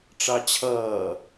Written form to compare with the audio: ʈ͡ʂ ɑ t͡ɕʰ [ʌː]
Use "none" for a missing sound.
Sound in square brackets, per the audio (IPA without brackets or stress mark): ʌː